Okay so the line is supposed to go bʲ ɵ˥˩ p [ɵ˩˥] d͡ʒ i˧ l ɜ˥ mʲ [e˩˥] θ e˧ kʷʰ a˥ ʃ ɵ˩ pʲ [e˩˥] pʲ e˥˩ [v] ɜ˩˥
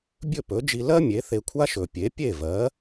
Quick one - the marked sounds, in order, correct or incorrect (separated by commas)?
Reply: correct, correct, correct, correct